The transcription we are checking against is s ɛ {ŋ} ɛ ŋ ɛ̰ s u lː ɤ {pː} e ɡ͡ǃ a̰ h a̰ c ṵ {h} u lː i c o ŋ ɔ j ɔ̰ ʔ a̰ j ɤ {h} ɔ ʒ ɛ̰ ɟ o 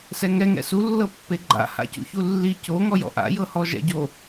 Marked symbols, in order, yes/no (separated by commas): yes, yes, no, yes